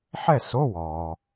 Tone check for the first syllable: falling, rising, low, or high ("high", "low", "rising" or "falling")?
falling